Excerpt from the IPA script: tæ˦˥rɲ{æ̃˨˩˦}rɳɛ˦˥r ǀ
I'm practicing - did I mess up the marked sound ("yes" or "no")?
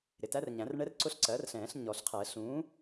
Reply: no